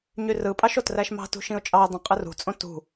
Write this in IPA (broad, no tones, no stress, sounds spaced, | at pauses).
ɲ y r ɯ pʼ ɑ ʃ o t r æ ʃ m ɑ̤ t ṳ ʃ ĩ ʊ̯ t͡ʃʼ ɑ ə̯ dˤ ĩ qʼ ɯ r ṳ t͡sʼ õ t ṳ